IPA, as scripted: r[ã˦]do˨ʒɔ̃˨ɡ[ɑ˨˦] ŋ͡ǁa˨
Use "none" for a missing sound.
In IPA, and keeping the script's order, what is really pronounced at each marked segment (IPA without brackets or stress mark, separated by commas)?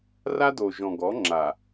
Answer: a˦, ɔ˨˦